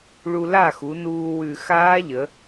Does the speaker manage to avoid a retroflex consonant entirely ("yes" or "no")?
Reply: no